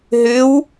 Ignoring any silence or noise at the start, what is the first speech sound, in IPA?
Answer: ɦ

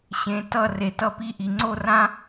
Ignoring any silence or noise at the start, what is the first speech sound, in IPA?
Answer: ɕ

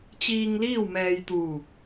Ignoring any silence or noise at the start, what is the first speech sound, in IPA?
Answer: t͡ɕ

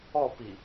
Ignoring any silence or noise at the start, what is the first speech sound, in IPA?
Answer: ɔ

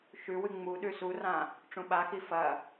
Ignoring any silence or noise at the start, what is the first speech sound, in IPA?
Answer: ʃ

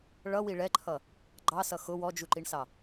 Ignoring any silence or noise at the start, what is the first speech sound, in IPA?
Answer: ɭ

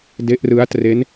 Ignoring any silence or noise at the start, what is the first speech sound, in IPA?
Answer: d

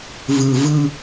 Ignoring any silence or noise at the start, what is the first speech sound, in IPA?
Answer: v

